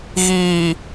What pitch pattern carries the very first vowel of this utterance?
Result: low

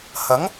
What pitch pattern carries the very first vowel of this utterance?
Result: rising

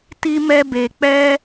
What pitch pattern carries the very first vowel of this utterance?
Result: high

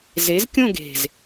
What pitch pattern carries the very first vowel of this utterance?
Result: rising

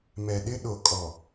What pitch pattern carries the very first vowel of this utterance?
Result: low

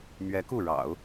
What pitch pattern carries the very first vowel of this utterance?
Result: rising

